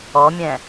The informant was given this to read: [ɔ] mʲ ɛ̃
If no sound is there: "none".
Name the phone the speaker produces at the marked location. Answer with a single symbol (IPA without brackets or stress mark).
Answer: ɔ